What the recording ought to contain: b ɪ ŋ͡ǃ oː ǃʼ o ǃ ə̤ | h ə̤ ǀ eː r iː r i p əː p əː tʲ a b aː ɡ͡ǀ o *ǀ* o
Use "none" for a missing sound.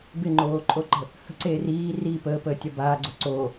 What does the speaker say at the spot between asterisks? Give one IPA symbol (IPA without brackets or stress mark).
ǀ